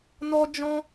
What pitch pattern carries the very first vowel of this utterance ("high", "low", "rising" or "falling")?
high